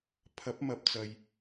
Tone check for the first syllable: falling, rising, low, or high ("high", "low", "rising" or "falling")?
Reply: rising